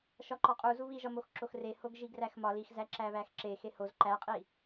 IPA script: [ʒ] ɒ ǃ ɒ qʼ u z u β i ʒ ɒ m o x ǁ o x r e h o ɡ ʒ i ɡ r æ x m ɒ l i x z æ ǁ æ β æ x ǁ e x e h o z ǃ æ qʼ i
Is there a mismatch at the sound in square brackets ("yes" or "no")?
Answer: yes